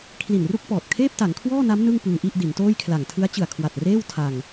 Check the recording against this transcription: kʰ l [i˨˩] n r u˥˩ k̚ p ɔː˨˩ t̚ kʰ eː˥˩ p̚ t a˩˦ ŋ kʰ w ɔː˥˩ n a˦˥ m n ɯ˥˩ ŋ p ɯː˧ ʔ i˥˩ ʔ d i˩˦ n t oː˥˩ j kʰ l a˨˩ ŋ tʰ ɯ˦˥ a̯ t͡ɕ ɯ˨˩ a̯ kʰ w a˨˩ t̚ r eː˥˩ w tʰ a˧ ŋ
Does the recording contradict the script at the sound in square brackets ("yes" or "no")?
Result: no